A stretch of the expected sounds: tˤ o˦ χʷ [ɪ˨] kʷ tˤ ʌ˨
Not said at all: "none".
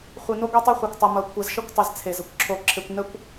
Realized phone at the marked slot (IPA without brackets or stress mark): ɛ˨